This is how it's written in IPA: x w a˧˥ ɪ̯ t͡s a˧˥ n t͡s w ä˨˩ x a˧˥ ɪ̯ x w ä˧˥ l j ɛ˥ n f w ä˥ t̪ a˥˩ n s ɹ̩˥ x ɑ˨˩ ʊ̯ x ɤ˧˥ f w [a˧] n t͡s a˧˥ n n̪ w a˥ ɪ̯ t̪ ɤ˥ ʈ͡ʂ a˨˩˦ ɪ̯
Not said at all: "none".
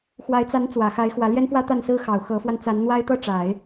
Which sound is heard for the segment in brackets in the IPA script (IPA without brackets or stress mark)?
a˧